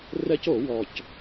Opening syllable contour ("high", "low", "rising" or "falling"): high